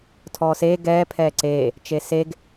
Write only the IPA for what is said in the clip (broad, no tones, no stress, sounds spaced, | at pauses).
tʰ ɔː s eː ɡ ɛː pʰ ɛː ǀ eː | t͡ʃ e s e ɡ